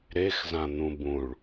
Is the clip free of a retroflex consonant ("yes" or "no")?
no